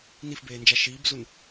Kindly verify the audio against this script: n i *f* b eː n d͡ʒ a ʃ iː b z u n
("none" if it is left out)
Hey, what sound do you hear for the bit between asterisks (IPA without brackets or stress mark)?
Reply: f